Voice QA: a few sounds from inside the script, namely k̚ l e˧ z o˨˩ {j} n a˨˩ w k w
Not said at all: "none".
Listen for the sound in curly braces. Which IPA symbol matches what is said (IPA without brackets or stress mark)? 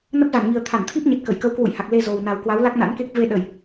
w